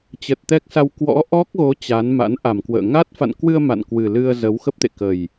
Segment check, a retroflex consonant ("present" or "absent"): absent